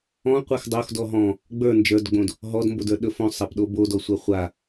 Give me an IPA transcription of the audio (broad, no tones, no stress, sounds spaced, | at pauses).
ɔ̃ qʷ a x dˤ o x d ɔ ɦ ɔ̃ | ɡ͡b ə˞ n d͡ʒ ə˞ d ɡ͡b õ d | ɦ ɔ d m b o d ə˞ ɗ ɵ f õ sˤ a p ɗ o b o d ɔ sʷ a χʷ a